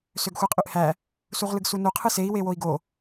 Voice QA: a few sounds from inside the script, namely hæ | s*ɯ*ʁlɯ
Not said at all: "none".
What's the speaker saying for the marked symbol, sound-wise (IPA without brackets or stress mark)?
u